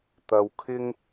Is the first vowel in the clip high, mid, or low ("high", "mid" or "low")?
low